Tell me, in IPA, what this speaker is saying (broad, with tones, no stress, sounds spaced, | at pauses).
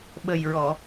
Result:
ɓ ə˨˩ j ɹ ɔ˨˩˨